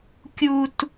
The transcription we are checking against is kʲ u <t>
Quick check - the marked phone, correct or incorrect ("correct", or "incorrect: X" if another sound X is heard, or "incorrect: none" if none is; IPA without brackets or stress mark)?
correct